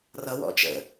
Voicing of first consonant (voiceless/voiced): voiced